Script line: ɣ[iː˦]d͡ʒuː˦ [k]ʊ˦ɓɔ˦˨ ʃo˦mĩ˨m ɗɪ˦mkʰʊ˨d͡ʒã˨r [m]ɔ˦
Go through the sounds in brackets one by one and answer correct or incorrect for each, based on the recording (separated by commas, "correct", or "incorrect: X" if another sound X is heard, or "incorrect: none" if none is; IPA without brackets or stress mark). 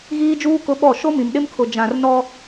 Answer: correct, correct, incorrect: n